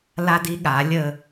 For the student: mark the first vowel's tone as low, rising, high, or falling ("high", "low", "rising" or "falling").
high